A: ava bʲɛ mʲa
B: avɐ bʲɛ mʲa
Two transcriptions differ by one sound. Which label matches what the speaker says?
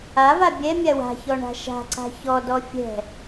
A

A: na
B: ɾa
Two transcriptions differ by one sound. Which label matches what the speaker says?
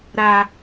B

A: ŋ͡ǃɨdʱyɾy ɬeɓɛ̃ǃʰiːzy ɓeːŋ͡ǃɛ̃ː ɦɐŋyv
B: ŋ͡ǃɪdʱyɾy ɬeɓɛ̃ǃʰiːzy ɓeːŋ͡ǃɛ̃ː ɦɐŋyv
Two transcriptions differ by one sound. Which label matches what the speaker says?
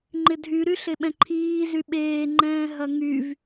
B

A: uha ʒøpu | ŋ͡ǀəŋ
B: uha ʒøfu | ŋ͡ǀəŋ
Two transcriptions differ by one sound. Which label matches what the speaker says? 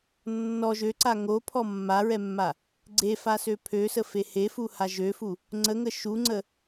B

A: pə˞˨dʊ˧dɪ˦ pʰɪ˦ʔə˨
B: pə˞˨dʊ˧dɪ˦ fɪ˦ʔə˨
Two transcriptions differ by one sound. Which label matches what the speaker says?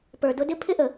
A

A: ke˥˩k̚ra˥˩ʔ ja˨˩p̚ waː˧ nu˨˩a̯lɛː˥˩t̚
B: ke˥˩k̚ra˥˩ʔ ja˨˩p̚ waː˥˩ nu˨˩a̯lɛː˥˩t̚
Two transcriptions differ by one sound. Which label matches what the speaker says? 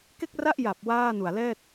B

